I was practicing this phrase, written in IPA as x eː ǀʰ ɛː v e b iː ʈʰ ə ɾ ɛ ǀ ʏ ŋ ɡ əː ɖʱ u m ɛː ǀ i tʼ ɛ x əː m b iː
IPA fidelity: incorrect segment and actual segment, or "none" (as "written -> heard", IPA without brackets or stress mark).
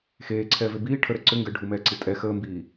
none